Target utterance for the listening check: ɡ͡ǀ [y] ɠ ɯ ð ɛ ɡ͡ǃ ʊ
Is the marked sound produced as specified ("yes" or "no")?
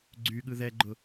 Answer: yes